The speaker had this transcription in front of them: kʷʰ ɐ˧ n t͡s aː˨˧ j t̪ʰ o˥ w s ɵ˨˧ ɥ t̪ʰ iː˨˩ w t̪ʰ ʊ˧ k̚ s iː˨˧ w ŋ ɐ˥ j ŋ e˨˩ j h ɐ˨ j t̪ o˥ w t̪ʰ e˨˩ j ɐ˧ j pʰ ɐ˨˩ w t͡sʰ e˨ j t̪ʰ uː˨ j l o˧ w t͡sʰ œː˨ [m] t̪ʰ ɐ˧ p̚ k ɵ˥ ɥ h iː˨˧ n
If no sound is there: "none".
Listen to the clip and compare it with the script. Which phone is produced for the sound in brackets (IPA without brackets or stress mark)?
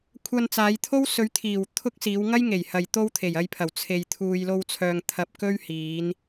ŋ